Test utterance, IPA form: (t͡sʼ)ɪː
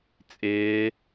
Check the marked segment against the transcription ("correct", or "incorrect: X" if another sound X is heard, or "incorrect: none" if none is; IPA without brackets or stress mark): correct